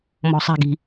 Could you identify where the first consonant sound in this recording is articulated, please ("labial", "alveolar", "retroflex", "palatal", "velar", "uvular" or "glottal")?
labial